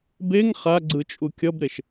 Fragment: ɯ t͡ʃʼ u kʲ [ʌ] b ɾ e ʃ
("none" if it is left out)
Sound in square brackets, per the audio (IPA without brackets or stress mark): ʌ